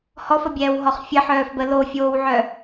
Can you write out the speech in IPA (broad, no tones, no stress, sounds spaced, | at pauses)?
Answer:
h ɔ f ə bʲ ɛː w ɦ ɔ χ fʲ ə ħ œː f b ə l o fʲ oː w ʕ œ